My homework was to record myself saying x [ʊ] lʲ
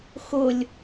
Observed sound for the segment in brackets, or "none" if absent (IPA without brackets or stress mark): ʊ